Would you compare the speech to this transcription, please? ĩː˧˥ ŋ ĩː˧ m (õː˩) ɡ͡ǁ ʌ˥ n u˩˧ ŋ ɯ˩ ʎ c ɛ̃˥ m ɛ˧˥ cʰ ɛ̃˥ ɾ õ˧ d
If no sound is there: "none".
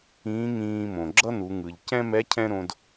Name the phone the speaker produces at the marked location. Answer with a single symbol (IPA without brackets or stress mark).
õ˩